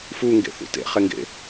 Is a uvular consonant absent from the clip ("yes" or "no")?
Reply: no